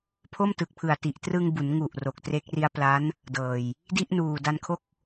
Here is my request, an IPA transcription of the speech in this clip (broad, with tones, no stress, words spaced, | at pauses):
pʰo˥˩mtɯ˨˩k̚pʰɯ˨˩a̯ti˨˩ʔ trɯ˧ŋbu˩˦nŋu˨˩ʔ ro˨˩k̚tre˦˥k̚ ri˦˥a̯pla˦˥n | dɤː˨˩j | di˥˩ʔnuː˨˩da˧nkʰo˥˩k̚